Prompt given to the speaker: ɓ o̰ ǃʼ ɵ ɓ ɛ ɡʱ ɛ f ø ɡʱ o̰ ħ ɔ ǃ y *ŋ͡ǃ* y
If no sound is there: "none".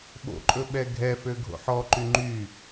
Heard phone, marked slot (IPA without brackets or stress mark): ŋ͡ǃ